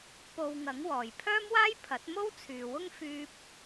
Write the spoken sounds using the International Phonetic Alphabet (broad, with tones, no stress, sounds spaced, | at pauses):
p o˧ w ŋ ɐ˨˥ ŋ w ɔː˨ j pʰ œː˥ m w aː˥ j pʰ ɐ˨˥ t̚ m o˥ w t͡sʰ yː˨ w ʊ˥ ŋ f yː˥ p̚